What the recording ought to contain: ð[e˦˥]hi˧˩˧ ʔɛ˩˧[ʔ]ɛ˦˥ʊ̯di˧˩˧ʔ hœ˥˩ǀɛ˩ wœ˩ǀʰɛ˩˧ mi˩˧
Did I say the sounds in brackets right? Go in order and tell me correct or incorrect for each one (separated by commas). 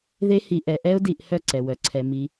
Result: correct, correct